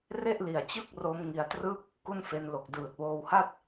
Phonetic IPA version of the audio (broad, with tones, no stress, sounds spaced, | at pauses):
r e˥˩ ʔ l i˨˩ a̯ t͡ɕ ɯ˥˩ k̚ r o˦˥ m ŋ i˧ a̯ t r ɯ˥˩ k̚ | k u˥˩ n f e˧ n l o˨˩ k̚ d ɯː˨˩ t̚ w oː˧ w h a˥˩ t̚